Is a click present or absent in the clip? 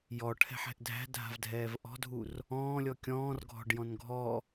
absent